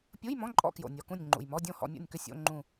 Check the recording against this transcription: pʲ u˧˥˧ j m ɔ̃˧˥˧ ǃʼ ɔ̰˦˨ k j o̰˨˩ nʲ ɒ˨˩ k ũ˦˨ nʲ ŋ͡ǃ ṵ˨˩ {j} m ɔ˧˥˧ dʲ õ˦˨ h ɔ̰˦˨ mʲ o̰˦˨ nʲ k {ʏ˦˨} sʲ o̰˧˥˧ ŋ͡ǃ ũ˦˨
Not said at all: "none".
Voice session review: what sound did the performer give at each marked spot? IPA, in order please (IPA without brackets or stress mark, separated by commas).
j, ʏ˦˨